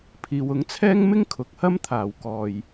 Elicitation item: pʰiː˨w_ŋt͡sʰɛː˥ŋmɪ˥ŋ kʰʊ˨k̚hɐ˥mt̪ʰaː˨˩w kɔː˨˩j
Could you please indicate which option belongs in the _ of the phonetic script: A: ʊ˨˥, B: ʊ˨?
A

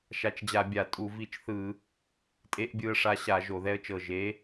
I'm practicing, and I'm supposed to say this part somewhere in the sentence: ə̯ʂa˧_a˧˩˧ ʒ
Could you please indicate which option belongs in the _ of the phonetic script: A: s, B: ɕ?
B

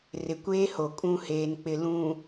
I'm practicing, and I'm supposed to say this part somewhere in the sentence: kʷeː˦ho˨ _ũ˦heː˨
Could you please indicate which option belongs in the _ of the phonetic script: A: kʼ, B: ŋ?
A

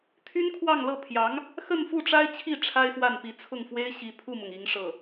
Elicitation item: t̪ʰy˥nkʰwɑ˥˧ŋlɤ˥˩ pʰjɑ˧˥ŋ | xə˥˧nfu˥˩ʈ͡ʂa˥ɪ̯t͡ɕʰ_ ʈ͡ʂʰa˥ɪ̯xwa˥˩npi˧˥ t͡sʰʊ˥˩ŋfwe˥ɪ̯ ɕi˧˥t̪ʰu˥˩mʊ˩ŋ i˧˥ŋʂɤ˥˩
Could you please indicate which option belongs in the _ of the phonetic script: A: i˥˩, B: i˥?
A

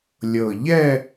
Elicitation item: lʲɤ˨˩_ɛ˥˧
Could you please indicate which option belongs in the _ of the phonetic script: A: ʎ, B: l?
A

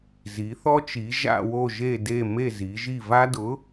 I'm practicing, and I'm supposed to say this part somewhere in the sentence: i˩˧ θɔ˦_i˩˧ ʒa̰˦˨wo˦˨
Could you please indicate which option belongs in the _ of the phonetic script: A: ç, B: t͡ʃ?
B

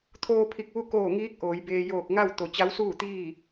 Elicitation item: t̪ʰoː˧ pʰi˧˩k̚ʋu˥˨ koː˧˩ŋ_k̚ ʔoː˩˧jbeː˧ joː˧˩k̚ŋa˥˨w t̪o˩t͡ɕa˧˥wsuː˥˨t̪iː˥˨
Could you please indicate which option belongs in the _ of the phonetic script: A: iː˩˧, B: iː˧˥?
B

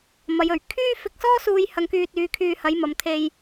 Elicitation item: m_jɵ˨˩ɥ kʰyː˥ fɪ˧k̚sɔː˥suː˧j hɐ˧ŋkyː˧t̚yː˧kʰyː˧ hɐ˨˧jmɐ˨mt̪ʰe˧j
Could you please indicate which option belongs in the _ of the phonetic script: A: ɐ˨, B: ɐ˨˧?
B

